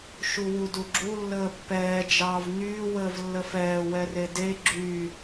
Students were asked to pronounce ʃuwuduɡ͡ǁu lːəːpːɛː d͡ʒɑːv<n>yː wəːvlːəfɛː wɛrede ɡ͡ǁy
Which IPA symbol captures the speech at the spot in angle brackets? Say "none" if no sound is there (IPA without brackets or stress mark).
n